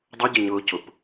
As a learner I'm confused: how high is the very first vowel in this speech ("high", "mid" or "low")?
high